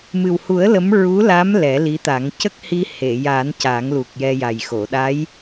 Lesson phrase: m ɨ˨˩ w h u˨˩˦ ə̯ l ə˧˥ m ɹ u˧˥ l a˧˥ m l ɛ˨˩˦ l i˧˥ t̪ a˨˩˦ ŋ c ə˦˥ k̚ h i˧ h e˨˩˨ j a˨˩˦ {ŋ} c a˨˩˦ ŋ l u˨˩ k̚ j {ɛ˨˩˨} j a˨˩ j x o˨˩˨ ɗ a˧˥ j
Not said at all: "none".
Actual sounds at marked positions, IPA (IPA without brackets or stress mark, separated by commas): n, ɛ˧